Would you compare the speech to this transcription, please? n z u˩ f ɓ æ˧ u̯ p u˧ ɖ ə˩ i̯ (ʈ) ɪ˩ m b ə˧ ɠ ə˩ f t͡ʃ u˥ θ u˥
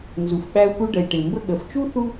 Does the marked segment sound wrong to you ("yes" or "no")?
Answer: no